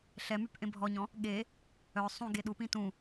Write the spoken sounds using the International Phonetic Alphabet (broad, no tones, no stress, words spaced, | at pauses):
ɬɛmyp ʔẽbʱɔɲɔ̃ | ɠe | œ sˤũ ɡeɗupĩ tũ